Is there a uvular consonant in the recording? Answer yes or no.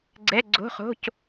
yes